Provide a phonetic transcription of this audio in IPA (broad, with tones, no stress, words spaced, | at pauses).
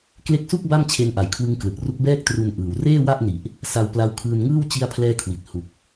kle˦˥k̚su˥˩k̚ ba˥˩m t͡ɕʰe˦˥nʔa˨˩jkʰwɯ˦˥ŋ klɯ˨˩k̚ru˦˥k̚bɛː˥˩k̚ tru˧n ʔɯː˧w reː˥˩wa˥˩ʔni˨˩ʔ | sa˧wpla˦˥wkʰɯː˧nŋɯː˥˩w t͡ɕi˥˩a̯pʰlɛː˥˩kʰwi˨˩t̚ hu˨˩k̚